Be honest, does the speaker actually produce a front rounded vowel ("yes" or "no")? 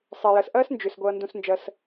yes